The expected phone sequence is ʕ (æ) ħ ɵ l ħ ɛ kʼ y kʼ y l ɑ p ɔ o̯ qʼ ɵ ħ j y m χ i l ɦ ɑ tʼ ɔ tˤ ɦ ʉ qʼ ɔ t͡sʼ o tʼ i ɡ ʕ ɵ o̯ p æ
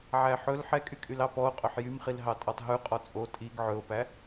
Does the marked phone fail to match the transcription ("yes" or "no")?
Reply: no